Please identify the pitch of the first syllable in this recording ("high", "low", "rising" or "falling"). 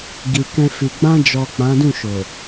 low